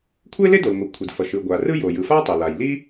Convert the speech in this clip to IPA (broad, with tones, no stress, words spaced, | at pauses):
kʷʰe˥le˥do˩lŋʷe˩ kʷʰi˩dfʌ˩ʃɯ˩ ɡʷa˩rɯ˥jo˩ jɯ˩fa˥ tˤe˩la˩jli˥